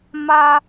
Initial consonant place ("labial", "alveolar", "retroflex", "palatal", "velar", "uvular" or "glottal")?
labial